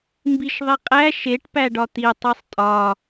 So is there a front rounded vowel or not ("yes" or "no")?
no